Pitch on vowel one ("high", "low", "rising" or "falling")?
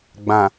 low